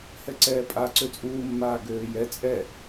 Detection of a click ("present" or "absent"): present